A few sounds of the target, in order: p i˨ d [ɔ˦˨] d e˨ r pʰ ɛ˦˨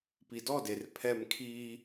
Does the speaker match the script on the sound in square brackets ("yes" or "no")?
yes